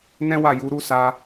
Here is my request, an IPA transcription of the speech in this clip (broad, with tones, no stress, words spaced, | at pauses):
nɛ̃˦wa˦˨ ju˨˦ ɾu˦sa˧